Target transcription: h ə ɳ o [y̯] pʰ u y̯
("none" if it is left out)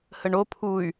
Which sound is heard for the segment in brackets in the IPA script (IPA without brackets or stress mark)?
none